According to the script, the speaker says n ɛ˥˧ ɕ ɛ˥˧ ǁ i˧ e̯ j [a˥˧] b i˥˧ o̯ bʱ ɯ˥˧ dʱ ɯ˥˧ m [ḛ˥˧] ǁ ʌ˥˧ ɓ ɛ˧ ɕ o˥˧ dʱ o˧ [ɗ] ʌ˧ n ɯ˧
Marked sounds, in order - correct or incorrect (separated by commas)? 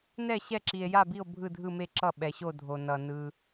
correct, incorrect, incorrect